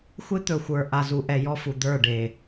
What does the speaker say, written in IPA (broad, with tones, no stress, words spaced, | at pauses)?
xʷe˦t̪ɵ˨ xʷə˞˨ ʔa˨zu˨ʔɛ˨ jɔ˦fu˨d̪ə˞˦˨ɖe˨